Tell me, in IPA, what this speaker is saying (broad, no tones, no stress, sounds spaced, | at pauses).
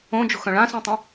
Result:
õ d͡ʒ o̤ x œ̃ ɭ ã s ũ tˤ ə̃